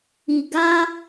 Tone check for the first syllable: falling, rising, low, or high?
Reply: low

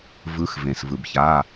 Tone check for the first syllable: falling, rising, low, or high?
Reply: rising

